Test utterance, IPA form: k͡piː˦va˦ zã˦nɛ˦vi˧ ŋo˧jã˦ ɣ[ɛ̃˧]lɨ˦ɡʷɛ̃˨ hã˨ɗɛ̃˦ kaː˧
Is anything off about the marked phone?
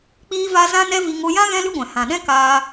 yes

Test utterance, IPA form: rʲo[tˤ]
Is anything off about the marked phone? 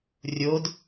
yes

